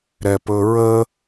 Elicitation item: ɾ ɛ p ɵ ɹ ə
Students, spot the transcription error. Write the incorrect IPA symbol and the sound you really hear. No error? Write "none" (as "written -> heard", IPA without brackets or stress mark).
none